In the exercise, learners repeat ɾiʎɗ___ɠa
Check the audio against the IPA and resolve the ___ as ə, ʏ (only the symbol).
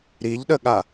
ə